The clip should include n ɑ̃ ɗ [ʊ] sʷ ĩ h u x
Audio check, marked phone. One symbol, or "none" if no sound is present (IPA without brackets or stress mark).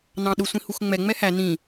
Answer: ʊ